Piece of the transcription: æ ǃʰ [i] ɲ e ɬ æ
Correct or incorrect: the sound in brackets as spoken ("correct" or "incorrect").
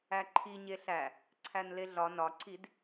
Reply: correct